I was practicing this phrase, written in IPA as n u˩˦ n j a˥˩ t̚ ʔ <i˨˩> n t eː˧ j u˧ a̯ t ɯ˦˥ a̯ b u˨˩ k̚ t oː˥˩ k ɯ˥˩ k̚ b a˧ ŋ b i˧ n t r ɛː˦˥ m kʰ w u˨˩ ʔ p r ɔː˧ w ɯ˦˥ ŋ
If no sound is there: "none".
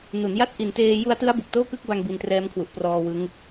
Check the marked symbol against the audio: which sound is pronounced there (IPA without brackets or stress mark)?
i˨˩